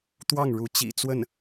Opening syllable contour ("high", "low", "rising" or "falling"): falling